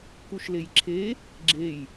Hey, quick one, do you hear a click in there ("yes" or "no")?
yes